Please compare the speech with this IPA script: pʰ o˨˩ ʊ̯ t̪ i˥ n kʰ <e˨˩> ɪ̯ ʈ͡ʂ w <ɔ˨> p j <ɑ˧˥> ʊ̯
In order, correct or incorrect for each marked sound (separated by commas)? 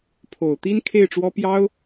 incorrect, incorrect, incorrect